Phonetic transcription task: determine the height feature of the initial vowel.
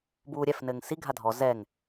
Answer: high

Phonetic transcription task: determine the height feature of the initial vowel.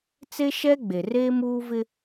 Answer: mid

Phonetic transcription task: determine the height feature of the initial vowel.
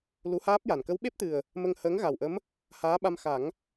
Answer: high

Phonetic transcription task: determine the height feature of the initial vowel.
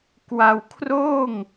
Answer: low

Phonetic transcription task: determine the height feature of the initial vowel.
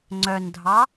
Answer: mid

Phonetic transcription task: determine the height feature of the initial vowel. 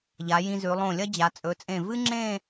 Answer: low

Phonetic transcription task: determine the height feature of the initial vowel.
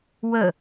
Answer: mid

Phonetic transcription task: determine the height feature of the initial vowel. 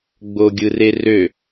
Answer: mid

